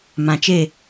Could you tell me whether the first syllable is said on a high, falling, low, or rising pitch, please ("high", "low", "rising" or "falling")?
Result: low